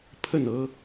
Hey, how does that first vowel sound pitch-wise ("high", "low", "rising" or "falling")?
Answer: falling